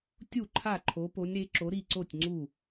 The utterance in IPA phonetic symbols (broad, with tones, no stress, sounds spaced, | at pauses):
tʲ u˥˩ ǃʰ a˥˩ ǃʰ o˨˦ p o˨˦ nʲ ɾ e˨˦ ǁ o˨˦ ɾ i˥˩ ǀ o˥˩ tʲ ŋ͡ǀ u˥˩